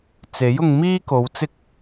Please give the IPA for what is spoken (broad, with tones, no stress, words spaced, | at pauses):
t͡se˨˥jʊ˧ŋmiː˥ko˨˧w t͡sɪ˥k̚